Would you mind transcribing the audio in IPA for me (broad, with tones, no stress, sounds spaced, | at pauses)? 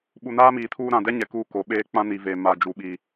ɓ u˨ n aː˦ m iː˨ tʰ uː˦ ɾ ã˨ d ɛ˦ ɲ ɛ˨ k uː˦ k o˨ ɓ eː˦ k͡p ã˦ n i˨ v eː˨ m a˨ d͡ʒ u˨ ɓ iː˨